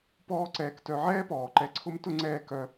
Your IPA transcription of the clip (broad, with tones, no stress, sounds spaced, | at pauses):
p ɔː˦ ǀ ɛː˨ k t œ˨ ʕ ɛː˥ p ɔː˩ ǃ ɛ˨ ǀʰ ʊ˦ m t ʊ˥ ŋ͡ǀ ɛː˦ k œ˨